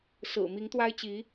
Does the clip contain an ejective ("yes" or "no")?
no